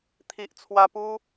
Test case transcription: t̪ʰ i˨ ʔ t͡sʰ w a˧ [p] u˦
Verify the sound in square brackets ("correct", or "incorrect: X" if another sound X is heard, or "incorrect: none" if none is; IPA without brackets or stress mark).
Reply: correct